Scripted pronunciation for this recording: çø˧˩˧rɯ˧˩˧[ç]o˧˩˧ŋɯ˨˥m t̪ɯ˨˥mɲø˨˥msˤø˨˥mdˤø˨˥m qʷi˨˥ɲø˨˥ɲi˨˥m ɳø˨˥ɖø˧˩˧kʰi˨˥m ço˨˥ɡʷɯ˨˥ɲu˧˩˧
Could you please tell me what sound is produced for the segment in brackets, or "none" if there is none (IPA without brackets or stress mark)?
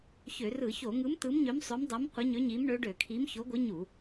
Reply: ç